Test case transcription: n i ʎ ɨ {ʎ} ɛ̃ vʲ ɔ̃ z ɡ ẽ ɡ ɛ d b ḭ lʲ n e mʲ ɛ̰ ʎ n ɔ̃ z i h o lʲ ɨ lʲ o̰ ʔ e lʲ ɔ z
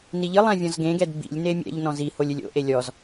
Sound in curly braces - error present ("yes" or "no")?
yes